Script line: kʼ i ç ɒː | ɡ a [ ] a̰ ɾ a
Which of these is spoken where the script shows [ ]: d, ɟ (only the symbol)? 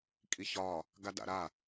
d